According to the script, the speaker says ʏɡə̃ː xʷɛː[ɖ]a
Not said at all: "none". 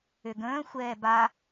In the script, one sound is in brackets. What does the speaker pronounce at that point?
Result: b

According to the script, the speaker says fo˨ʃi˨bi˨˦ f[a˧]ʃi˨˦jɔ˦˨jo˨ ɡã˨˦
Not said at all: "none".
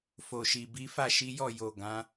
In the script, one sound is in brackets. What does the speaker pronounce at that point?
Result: a˦˨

